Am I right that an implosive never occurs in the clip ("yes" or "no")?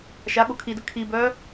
no